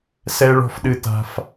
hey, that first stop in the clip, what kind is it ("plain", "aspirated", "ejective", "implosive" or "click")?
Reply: implosive